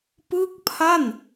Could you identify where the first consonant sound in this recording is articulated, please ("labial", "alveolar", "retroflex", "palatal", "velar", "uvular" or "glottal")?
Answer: labial